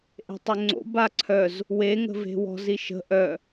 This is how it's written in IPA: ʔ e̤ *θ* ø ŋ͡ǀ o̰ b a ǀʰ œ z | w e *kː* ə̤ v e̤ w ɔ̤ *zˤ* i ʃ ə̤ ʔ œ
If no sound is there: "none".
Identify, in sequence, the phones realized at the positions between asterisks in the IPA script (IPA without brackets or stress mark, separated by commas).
tˤ, ŋ, z